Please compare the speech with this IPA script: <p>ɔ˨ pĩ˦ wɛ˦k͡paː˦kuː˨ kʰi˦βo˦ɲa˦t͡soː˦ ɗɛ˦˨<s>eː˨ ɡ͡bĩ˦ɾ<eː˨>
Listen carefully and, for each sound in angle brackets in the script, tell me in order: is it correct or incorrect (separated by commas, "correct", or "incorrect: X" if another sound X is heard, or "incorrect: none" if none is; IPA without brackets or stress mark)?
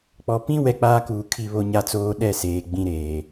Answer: incorrect: k͡p, correct, correct